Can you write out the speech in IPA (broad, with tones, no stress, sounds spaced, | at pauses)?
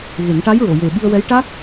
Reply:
ɣ e˨˩˦ ŋ ʈ a˧˥ j ɹ o˨˩˨ j e˨˩ ɓ i˧ ə̯ w ɛ˧˥ j ʈ a˦˥ k̚